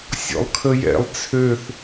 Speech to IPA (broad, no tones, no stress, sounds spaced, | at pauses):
sʲ ɔ̰ lˠ kʰ ə j ɛ̰ lˠ t͡sʰ ø θ